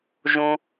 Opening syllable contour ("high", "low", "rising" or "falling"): low